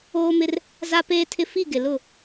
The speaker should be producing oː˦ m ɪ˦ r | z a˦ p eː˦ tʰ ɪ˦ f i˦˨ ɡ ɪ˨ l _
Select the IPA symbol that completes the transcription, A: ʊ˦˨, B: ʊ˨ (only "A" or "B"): A